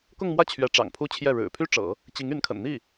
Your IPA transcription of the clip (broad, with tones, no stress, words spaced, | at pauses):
kʊ˥˧ŋmwä˥˩ t͡ɕʰɥɛ˧˥ ʈ͡ʂɑ̰˨˩ŋpʰu˥t͡ɕʰjɛ˥˩ ɻɻ̩˨˩pʰy˥ʈ͡ʂɤ̰˨˩˦ | t͡ɕi˧˥ŋy˧˥nkʰə̰˨˩n n̪i˥˩